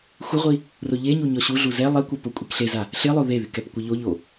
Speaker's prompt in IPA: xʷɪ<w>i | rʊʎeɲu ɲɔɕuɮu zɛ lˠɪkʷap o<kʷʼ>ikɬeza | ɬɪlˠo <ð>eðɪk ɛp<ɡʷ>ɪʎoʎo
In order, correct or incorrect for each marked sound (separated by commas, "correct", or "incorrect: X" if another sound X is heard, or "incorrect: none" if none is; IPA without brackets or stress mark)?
incorrect: ʁʷ, correct, correct, incorrect: kʷ